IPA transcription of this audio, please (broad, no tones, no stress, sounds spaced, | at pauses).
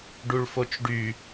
ɖ u ɭ f o t͡ʃ ɖ y